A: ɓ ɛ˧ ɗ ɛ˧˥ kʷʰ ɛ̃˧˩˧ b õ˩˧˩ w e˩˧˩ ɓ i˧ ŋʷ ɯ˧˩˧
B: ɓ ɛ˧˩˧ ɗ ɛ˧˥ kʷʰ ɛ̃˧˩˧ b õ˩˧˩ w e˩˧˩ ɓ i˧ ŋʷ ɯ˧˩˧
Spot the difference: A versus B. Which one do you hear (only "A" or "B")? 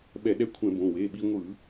B